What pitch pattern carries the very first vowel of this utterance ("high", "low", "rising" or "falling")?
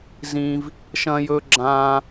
high